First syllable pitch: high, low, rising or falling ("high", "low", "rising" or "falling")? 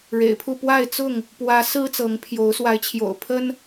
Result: low